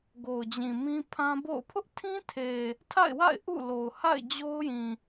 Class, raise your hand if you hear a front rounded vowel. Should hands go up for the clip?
no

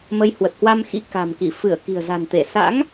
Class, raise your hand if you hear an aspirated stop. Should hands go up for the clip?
no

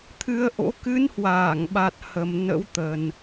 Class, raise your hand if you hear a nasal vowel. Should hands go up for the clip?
no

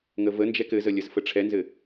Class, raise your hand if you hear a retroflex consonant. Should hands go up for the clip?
yes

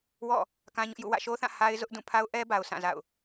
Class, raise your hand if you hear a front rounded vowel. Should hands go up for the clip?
no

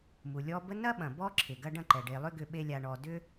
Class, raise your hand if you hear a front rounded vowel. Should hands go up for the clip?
yes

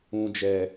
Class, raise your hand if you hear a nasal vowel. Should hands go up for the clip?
yes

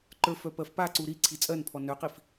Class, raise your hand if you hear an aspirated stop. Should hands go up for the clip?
yes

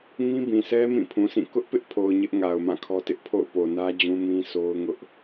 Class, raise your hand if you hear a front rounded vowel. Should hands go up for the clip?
no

